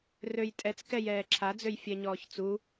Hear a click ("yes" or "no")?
yes